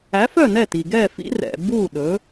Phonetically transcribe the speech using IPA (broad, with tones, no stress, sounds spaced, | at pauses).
æ˩˥ f œ˥˩ n ɛ˥˩ t i˩ ɡ ɛ˥˩ f ḭ˥ r ɛ̰˩ b u˥˩ ɗ ɵ˩˥